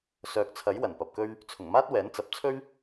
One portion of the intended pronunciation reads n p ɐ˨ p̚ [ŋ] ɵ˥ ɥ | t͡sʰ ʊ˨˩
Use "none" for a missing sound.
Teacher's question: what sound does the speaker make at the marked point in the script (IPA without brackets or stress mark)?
k